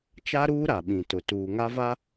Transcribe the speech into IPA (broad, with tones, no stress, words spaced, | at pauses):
t͡ʃa˦ɾuː˦ ɾa˨ɓĩ˨tʊ˨ tuː˨ ŋa˦va˦